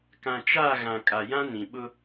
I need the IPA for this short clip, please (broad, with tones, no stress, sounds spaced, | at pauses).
k ã˨ t͡ʃ a˦˨ ɣ ã˨ kʼ a˨ j ã˦ n ĩ˨ ɓ ʊ˦